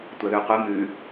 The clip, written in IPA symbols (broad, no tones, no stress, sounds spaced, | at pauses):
tʷ ɐ ð ʉ qʷ ɨ m ʉ